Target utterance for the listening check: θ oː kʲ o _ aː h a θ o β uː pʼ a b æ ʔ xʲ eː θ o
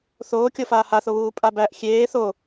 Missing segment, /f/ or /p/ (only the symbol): f